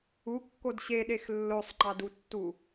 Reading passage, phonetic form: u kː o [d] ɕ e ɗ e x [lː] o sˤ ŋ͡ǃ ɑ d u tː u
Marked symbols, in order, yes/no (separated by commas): yes, yes